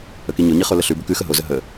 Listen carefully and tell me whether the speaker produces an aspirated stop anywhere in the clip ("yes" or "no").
no